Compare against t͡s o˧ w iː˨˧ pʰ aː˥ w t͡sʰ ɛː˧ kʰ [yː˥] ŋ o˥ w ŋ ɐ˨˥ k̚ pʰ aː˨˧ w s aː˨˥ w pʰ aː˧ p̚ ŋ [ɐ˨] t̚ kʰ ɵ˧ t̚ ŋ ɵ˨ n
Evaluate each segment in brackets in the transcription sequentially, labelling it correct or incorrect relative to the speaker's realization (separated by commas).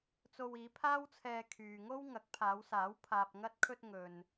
incorrect, incorrect